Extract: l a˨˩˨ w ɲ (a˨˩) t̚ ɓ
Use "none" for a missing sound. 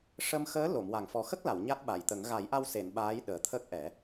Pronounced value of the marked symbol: a˦˥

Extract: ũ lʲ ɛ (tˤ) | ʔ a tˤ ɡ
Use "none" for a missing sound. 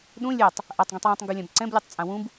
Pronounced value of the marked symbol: tˤ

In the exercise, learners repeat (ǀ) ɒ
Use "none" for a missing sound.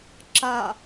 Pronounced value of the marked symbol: ǁ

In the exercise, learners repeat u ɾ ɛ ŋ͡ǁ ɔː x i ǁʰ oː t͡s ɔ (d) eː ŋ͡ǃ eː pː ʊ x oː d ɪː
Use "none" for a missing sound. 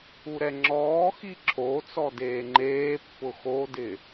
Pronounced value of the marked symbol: d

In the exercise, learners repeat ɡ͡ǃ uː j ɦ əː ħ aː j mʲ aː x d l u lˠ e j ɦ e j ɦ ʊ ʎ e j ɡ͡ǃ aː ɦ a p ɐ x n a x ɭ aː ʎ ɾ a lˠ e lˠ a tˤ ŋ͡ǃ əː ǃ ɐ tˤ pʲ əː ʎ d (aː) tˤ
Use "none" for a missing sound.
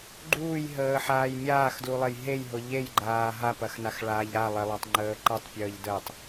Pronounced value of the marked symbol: əː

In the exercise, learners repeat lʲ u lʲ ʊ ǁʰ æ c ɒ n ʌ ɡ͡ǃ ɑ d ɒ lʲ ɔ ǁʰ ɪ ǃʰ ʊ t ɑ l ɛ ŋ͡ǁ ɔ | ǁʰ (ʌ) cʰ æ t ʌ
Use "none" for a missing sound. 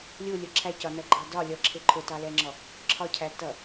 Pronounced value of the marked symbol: ɒ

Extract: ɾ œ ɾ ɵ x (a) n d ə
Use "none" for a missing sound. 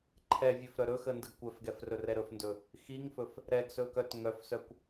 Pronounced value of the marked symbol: ə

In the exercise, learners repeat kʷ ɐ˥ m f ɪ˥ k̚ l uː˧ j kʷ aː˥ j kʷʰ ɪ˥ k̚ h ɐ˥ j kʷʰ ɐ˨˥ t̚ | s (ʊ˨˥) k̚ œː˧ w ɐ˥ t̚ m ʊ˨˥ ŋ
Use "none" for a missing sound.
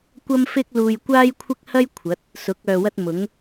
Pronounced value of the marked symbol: ʊ˨˥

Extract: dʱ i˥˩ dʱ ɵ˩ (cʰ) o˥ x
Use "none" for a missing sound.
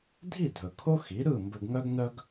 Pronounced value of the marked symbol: kʰ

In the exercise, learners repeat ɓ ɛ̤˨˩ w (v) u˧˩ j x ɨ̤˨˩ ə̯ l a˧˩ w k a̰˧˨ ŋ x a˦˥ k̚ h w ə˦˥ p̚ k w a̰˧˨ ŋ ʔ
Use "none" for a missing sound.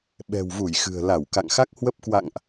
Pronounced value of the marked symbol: v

